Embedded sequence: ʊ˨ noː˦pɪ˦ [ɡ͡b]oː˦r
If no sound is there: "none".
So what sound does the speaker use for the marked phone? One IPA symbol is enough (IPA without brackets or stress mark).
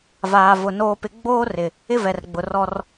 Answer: ɡ͡b